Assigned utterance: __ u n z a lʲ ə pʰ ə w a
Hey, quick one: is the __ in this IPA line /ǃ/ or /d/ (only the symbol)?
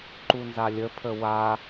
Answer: ǃ